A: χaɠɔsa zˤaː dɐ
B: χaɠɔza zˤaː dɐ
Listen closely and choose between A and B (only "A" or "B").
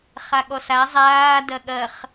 A